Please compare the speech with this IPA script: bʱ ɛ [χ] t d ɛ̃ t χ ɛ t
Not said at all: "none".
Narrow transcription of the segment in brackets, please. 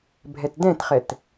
none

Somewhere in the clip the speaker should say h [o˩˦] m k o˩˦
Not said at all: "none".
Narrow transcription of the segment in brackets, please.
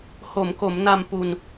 o˩˦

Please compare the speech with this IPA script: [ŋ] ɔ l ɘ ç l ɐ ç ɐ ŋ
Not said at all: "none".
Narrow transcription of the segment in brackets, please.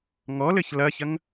ŋ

